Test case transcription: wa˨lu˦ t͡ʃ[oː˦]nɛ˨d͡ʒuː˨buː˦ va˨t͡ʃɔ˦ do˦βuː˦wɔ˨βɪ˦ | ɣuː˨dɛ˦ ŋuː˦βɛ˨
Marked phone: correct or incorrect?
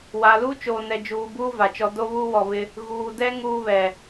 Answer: incorrect